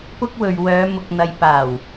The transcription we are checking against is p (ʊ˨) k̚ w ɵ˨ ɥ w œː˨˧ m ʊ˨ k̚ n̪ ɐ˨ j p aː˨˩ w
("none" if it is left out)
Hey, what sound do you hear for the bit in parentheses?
ʊ˥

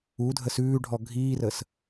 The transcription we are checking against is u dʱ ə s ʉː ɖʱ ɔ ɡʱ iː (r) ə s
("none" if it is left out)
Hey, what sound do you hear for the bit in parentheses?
r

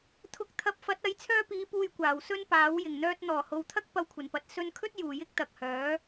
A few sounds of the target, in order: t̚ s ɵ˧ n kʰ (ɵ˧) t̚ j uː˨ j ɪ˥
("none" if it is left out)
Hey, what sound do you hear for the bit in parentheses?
ɵ˥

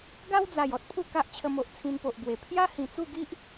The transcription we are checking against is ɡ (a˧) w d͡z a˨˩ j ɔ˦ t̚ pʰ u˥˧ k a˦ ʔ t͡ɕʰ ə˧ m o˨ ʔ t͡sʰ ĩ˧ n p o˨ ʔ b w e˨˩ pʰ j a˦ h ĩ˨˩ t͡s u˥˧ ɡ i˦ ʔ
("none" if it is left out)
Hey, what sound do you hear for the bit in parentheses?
a˦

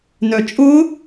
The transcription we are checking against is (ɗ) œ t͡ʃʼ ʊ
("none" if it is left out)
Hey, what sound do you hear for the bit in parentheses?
n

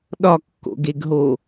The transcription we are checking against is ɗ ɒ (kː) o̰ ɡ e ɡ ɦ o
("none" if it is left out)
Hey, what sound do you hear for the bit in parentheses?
kː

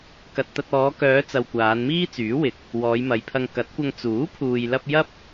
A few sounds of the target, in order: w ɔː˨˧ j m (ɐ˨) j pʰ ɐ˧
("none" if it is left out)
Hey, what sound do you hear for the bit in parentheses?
ɐ˨˧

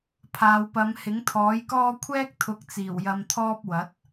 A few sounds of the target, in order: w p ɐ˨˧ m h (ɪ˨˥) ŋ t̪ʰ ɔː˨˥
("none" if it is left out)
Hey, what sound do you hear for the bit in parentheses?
ɪ˨˥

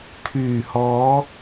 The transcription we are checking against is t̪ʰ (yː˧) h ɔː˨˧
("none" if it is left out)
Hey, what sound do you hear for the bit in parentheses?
yː˨˩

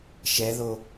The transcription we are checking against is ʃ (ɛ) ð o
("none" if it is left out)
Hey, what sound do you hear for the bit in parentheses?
ɛ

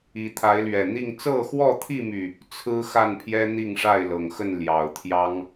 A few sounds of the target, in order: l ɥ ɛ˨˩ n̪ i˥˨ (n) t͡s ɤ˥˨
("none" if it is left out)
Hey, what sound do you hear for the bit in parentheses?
ŋ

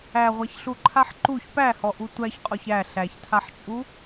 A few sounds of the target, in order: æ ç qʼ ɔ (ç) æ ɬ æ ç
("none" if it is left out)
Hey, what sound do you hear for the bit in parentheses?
ç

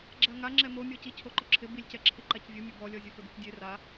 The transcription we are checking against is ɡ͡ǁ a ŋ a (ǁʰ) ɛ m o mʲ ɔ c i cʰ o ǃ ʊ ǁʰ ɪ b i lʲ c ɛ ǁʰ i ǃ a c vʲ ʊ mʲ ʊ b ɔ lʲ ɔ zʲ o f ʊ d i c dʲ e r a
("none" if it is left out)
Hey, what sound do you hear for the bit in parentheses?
ŋ͡ǁ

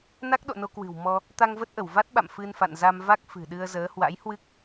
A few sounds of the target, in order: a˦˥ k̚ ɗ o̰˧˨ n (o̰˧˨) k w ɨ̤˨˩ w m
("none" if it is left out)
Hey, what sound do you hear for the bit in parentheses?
o˧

